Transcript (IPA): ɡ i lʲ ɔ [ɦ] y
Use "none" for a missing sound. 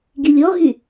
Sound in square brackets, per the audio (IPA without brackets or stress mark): ɦ